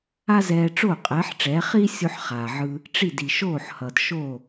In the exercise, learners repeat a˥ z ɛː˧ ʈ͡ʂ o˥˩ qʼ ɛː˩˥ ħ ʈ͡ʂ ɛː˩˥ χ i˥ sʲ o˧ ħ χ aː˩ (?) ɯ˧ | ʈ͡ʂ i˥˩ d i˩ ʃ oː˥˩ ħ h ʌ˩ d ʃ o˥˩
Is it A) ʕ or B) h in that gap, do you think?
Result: A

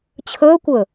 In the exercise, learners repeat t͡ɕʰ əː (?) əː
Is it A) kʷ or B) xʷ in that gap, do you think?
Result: A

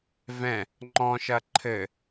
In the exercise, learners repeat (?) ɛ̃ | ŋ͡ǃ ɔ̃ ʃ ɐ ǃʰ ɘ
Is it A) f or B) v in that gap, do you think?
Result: B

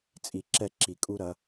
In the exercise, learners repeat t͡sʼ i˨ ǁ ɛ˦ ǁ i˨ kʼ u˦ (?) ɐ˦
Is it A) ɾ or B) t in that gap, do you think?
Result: A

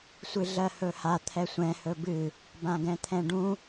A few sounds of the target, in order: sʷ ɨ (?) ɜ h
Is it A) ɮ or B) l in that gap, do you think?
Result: A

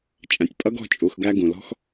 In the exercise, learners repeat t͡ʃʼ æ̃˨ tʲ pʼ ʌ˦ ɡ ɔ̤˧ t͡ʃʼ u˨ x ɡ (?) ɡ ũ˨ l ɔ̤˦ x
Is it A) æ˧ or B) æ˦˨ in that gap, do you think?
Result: A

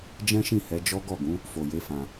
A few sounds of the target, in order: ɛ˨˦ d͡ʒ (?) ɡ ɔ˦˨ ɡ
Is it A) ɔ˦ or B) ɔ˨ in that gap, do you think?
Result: A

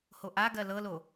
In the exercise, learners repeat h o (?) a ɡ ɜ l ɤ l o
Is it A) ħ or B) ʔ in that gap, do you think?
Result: B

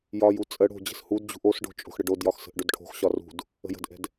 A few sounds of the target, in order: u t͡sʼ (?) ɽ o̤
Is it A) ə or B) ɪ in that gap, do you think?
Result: A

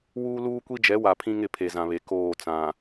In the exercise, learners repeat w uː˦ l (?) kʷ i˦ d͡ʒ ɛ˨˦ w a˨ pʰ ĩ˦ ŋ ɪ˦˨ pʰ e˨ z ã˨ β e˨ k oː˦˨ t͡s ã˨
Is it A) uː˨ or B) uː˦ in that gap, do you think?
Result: B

